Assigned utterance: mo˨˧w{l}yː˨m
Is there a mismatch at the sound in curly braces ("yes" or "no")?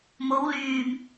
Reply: no